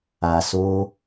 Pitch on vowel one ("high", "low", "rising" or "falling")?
low